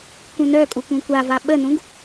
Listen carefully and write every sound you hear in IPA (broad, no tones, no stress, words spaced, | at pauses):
kũnœkʼu kũkʷava ɓənũɡ